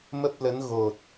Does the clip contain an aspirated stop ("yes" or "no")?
no